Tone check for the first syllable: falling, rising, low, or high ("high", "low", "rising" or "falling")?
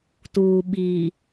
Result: low